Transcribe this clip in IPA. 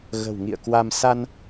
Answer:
ɣ ə̤˨˩ w ŋ ḭ˧˨ ə̯ k w a˧ m s a˧ n

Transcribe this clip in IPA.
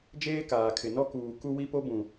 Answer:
d͡ʒ eː˦ k aː˨ kʰ ɪ˨ n ɔ˦ k uː˨ k u˦ w i˦ p o˦ b ũ˨

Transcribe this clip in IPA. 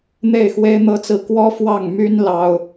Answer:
n̪ e˥˩ ɪ̯ x w e˥ ɪ̯ n̪ ɤ˥ t͡s ɹ̩˥˩ k w ɔ˥ f w ɑ˥˩ ŋ m y˥ n l ɑ˥ ʊ̯

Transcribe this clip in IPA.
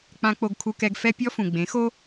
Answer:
k͡p ã˧ k͡p o˧ ɡ kʰ u˧ k ɛ˧ ɡ f ɛ˦ pʲ ɔ˦ f ũ˨ ɡ͡b ẽ˨˦ x o˦

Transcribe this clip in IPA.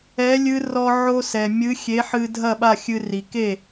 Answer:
ɛ˨˥ lʲ ɨ˦˥ r ɔ˧ ʕ o˧ s ɛ˩ mʲ ɨ˨˥ xʲ e˨˥ ħ ɨ˧ dʱ ɐ˥˩ ɓ a˥˩ xʲ ɨ˧ r i˩ k e˥˩

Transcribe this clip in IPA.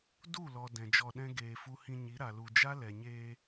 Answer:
d u˦˨ l ɔ˨ d ɛ̃˨ d͡ʒ ɔ˧ ɗ ɛ̃˦ ɡ eː˨ f u˧ h ĩ˧ ɲ i˨˦ ɾ a˨ l u˨ d͡ʒ a˦ l ɛ˨ ɲ eː˧

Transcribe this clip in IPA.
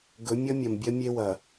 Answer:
ɡ ɵ˨˦ mʲ ʌ˦ mʲ ɐ˨ m bʲ ɐ˦ mʲ e˦ w ɐ˨

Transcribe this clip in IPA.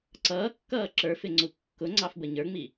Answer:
ǀ ʌː kː ʌː ǁ ə˞ f ɪ ŋ͡ǀ u kː ʊ ŋ͡ǀ ɑ f b ə ɲ ə˞ ŋ͡m i

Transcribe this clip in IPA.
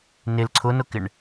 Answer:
n ɪ l ǀʰ ʊ n ʊ k ɪ ɳ

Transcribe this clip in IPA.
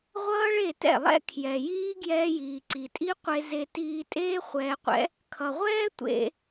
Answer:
ʁʷ ʌː˦ ɭ e˦˨ t ɛ̰˦˨ lˠ ɛ̰˦ kʰ j ɛ˨ j iː˦ ɡ j ɛː˧ j iː˨ ǀ i˨ tʼ i˦ qʷ e˧ z e˧ t iː˧ tʼ eː˦ χʷ ɛː˧ qʷ ɛ̰˦ | kʰ ʌ˨ ʁʷ ɛː˦ tʷ ḛ˧

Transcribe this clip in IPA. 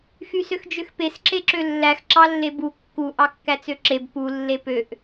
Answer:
x y s ø x d͡ʒ ø x p e s ǁ e ǁ ø lː æ x ǁ ɑ lː e b u kː u ʔ ɑ kː æ t͡s ø ǁ e b p u lː e p ø ʔ

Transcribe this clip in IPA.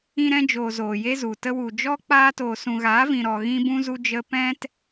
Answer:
ĩ˧ ɾ ɛ̃˧ d͡ʒ oː˨ z oː˨ j e˦ z u˨ t ə˧ w u˨ d͡ʒ ɔ˦ k͡p aː˧ t oː˨ s ũ˨ ɣ aː˨˦ v ĩ˨ ɾ ɔ˨ ɣ ĩ˦ b ũ˦ z u˦ d͡ʒ ə˦ p ɛ̃˦ t

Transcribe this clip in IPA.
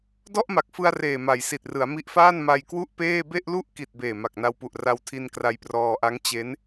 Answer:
d ɔ˥˩ ʔ m a˨˩ k̚ f ɯ˧ a̯ r eː˨˩ m a˩˦ j s i˨˩ t̚ r ɯ˩˦ a̯ m i˦˥ ʔ f aː˥˩ n m a˧ j k w u˥˩ ʔ p eː˥˩ b e˥˩ ʔ l u˥˩ ʔ k i˨˩ t̚ b eː˨˩ m a˨˩ k̚ n a˧ w p u˨˩ ʔ r a˧ w tʰ i˧ n k r a˧ j p r ɔː˧ ʔ a˦˥ ŋ t͡ɕ e˦˥ n

